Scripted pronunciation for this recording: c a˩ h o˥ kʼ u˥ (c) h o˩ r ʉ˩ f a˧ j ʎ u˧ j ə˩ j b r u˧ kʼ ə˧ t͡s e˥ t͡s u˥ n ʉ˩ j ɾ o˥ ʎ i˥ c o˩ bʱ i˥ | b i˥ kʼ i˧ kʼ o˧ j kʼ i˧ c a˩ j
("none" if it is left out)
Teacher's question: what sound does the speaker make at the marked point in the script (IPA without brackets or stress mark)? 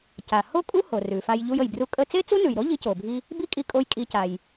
none